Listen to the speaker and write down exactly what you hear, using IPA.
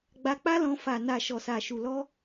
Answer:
ɡ͡b a˧ k͡p a˦ l ɔ̃˧ f a˨ n a˨ ʃ ɔ˨ s a˨ ʃ u˨ l ɔ˧

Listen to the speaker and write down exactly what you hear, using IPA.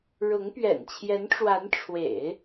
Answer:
ɻ ʊ˧˥ ŋ p ɥ ɛ̰˨˩ n t͡ɕʰ j ɛ˧˥ n ʈ͡ʂ w a˧˥ n ʈ͡ʂʰ w ḛ˨˩˦ ɪ̯

